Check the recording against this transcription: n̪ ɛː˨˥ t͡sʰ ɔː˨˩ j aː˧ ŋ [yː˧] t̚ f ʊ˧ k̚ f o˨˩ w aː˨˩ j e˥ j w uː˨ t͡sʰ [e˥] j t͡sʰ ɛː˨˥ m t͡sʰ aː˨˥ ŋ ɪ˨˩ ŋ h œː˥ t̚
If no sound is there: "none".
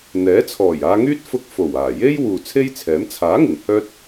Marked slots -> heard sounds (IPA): yː˥, e˥

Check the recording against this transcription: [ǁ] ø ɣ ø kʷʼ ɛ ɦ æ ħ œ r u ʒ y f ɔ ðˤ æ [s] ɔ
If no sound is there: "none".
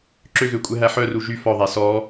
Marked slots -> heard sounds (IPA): ǁ, s

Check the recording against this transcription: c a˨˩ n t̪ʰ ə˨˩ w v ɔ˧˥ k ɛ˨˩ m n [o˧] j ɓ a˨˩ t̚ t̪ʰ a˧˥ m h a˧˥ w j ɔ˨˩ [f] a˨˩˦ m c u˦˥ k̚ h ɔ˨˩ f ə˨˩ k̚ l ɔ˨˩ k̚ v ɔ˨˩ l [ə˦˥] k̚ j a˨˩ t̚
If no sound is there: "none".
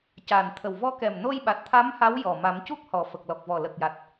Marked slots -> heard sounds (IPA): o˧, m, ə˨˩

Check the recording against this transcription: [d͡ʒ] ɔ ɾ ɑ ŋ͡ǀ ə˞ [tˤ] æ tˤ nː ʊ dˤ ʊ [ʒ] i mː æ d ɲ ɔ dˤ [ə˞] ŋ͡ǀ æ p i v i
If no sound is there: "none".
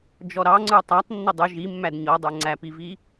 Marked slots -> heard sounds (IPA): d͡ʒ, tˤ, ʒ, ə˞

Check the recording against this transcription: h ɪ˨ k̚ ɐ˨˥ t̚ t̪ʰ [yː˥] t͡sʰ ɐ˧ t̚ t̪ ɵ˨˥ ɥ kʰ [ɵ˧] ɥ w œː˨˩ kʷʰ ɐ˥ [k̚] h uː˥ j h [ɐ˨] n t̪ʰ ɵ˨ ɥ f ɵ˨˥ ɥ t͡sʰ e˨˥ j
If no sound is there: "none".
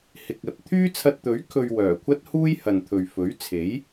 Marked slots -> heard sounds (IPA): yː˥, ɵ˧, t̚, ɐ˨

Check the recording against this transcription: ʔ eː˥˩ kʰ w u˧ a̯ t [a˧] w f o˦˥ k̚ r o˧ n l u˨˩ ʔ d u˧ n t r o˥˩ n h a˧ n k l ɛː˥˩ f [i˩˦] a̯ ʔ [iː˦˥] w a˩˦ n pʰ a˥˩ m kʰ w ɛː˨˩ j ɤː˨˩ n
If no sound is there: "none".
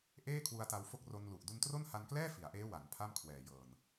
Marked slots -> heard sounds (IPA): a˧, i˩˦, eː˦˥

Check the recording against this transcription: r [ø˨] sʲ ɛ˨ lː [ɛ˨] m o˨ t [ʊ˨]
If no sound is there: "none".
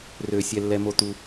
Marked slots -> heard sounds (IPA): ø˨, ɛ˨, u˨

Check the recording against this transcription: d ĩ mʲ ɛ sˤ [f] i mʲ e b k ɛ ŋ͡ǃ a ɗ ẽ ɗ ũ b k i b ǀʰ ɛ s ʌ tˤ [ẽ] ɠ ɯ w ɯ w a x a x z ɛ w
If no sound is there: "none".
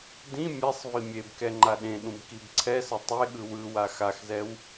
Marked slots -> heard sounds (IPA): v, e

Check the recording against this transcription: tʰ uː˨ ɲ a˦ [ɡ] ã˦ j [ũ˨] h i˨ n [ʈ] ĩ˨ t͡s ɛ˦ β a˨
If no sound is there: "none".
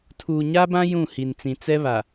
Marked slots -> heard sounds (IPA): b, ũ˦˨, t͡s

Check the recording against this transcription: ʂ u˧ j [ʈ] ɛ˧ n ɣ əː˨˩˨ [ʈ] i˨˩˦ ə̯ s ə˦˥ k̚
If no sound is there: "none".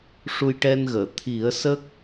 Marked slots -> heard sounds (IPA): ʈ, t̪ʰ

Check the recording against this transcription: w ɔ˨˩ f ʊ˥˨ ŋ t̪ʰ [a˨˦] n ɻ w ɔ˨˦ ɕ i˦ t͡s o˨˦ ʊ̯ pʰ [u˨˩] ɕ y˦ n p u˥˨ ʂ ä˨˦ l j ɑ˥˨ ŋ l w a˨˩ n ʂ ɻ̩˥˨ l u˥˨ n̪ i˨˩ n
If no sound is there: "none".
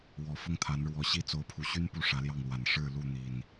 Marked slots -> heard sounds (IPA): a˨˦, u˨˩

